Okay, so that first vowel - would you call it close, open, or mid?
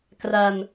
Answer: open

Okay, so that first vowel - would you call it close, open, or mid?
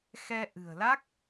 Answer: mid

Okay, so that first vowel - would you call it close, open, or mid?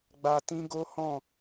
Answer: open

